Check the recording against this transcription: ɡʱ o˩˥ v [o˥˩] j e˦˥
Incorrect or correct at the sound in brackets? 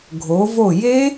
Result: correct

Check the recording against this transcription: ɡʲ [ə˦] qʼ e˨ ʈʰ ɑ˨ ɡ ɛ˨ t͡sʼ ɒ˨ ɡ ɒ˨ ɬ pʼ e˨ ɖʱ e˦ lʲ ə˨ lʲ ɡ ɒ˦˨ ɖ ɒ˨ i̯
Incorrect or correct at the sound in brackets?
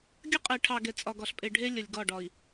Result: correct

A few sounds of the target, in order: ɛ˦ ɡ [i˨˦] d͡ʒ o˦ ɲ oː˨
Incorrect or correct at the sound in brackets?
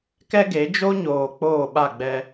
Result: incorrect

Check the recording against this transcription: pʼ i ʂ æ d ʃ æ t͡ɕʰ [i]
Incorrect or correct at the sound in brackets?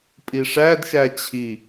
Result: correct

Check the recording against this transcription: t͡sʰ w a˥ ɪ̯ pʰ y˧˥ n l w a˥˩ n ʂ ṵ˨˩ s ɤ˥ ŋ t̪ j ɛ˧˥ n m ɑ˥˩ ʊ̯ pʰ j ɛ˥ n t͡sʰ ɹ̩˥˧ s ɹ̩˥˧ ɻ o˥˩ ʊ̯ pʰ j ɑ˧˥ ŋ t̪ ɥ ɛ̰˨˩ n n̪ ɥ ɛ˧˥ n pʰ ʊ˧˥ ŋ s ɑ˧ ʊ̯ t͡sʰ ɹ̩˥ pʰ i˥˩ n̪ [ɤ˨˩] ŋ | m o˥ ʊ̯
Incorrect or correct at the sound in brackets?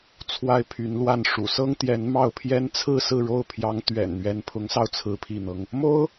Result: incorrect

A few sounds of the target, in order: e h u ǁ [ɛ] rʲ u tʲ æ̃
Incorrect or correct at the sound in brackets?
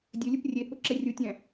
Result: correct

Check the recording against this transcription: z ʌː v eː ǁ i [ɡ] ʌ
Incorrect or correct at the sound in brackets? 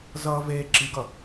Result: correct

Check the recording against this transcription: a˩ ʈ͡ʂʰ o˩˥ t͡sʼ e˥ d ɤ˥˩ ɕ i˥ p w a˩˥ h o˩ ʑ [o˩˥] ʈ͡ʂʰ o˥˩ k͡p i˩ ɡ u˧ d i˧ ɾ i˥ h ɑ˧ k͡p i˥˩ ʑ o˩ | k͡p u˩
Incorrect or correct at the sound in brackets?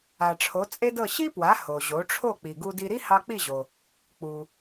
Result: correct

